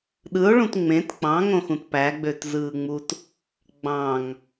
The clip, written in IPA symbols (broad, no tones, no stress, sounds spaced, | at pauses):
ɗ ɯ o̯ ɭ ũ t ŋ͡m ẽ t k͡p ɑ̃ ŋ õ x ũ t p æ ɡ͡b ø t z ɯː ŋ͡m u t | ɡ͡b ɑ̃ ŋ